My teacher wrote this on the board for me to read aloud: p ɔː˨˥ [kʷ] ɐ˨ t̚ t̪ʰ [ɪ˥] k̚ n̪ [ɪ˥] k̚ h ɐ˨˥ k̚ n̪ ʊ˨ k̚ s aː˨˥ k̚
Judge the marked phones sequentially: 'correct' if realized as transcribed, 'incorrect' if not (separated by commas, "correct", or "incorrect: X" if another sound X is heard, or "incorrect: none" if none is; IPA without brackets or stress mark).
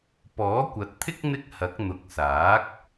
correct, correct, correct